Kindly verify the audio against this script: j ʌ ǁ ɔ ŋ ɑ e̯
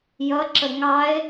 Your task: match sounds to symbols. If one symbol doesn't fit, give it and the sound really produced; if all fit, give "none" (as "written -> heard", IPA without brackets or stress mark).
ɔ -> ə